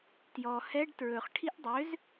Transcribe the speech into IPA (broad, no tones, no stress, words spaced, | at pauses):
tjɔ hɛɖ tɹɵχ ʈʰiʔdˤøz